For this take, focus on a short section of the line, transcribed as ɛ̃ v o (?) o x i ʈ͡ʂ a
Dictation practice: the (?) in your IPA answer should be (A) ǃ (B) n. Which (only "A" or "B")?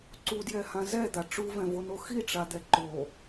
B